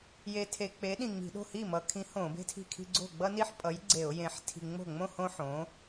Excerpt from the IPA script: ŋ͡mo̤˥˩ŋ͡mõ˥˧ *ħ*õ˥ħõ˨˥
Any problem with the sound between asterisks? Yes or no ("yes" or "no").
yes